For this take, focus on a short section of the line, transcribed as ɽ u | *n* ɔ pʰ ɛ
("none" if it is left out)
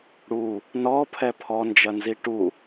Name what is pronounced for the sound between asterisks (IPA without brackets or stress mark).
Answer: n